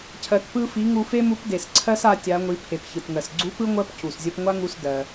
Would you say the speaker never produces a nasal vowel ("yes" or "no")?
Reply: yes